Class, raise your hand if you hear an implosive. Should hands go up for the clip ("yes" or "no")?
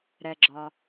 no